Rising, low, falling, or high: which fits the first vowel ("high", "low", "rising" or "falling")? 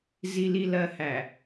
low